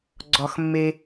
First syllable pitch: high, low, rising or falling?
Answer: low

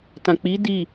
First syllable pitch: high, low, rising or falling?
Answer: low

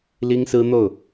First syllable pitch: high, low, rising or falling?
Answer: high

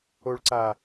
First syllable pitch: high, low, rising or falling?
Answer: low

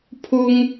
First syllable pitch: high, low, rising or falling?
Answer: high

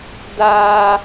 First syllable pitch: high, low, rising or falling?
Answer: high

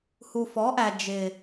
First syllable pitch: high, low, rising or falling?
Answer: low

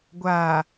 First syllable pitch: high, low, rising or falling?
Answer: low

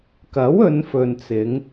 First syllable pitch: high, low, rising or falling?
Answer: rising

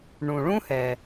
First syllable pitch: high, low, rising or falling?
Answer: low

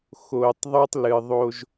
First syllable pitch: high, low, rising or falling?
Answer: low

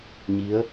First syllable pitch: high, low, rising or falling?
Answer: rising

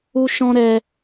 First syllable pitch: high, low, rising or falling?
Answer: high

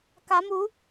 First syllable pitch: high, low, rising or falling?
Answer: rising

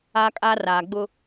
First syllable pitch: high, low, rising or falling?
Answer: high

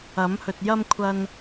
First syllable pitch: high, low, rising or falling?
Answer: rising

